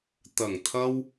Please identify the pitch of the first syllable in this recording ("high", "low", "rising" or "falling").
low